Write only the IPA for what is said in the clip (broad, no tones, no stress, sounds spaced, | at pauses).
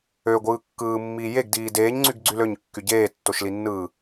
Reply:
ø ɡʷ ɯː kː ɯː mː iː j e ɡ d iː d eː ɲ ŋ͡ǀ y ɡ ɡ͡ǀ y l ø ɲ kː y ɟ eː tː o ʃ l i nː ɯː